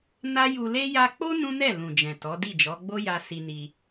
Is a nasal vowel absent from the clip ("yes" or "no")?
no